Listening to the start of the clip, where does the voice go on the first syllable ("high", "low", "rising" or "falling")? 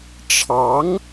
rising